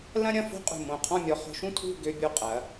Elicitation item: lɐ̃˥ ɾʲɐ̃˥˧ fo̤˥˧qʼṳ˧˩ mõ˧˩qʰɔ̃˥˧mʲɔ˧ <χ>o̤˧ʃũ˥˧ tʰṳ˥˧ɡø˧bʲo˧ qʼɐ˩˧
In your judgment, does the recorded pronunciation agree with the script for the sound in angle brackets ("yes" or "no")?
yes